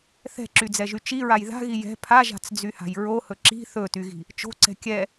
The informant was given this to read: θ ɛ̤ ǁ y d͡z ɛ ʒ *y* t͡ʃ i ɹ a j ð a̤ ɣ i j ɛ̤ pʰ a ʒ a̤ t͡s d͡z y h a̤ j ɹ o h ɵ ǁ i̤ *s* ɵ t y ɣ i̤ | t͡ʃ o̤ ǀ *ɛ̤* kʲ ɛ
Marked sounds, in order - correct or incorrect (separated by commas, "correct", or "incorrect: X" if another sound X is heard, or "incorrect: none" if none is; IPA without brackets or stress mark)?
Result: correct, incorrect: θ, correct